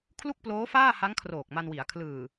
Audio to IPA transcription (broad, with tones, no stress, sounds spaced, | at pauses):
kʰ l u˥˩ k̚ p l oː˦˥ f aː˥˩ h a˦˥ ŋ kʰ r oː˨˩ k̚ m a˧ n w i˩˦ a̯ kʰ l ɯː˨˩